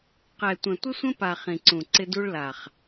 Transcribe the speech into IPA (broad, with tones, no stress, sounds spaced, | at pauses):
q ɛ˨ tʷ ə̃˨ tʷ ɪ˦ sʷ ə̃˦ p a˨ χ ĩ˨ ǀ ũ˨ ǀ ɪ˦ d u˦ ɭ l a˨ χ